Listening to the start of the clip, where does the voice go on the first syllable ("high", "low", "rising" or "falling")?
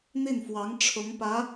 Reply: falling